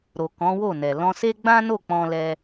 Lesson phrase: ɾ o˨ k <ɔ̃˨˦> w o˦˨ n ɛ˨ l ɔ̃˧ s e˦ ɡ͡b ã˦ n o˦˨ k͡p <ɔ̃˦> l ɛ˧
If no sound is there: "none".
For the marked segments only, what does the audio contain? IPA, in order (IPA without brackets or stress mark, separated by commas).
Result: ɔ̃˨˦, ɔ̃˧